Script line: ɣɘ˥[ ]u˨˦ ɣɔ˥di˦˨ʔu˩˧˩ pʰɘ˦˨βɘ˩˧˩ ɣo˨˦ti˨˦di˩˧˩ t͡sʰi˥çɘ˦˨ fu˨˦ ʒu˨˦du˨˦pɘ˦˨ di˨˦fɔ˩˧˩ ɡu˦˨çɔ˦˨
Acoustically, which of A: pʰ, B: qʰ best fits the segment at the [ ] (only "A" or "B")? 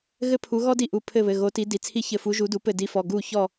A